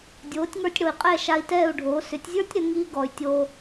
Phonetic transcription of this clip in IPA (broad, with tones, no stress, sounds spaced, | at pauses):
dʲ oː˩˥ tʲ ŋ ə˞˧ tʲ ɽ o˩ i̯ qʼ ɛ˥˩ ʃ a˧ i̯ t ɛː˥˩ u̯ ɖʱ oː˩˥ s ʏ˩˥ tʲ zʲ ə˞˥ tʲ ɾ ʏ˩˥ ŋ iː˥ ɡ ɔ˩ y̯ tʲ o˧